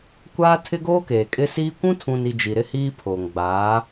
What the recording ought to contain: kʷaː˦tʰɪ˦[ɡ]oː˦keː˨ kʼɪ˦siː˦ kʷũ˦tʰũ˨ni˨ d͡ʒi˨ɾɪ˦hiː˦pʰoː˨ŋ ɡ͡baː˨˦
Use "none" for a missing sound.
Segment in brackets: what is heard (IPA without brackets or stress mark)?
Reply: ɡ